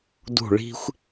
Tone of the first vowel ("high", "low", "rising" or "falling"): falling